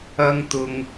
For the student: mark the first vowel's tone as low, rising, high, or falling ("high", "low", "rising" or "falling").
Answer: high